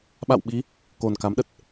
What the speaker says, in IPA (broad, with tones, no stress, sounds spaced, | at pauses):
ɓ a̰˧˨ w ɓ i˨˦ | k o˨˩ n k a˨˦ m ɗ ə˨˩ t̚